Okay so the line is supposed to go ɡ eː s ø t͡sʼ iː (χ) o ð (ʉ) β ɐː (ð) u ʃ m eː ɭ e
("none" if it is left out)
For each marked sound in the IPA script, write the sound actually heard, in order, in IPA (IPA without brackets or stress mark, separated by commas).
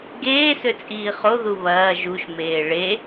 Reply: χ, u, ʒ